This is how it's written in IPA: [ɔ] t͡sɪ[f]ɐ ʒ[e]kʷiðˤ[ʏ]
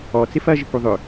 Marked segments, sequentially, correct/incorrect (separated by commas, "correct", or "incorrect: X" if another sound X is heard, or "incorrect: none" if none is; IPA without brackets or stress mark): correct, correct, incorrect: i, correct